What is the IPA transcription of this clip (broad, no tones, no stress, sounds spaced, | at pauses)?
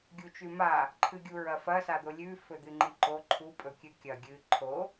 ɡʲ u t͡ʃ ʉ m a | ǃʰ ɨ ɡʲ u ɹ ɐ f ɐ s a d̪ o lʲ ʉ f ɵ d̪ ɨ ŋ͡ǃ i ǃ o ǃʰ u pʼ ɵ kʲ ɨ kʲ ɐ ɡʲ ɨ ǃʰ o